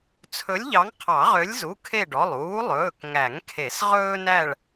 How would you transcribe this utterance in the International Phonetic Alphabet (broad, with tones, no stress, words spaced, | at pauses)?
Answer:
t͡sʰɵ˨˥lʲʎɑ˨˥ŋ qʰɑ˨˩˦ʁø˨˥lʲzu˩˧˩ kʰe˦˨ɖɔ˩˧˩lˠ uː˨˥lˠɵː˩˧˩k ŋæ˨˩˦ŋkʰe˨˩˦s ʁɵː˦næ˦˨ɭ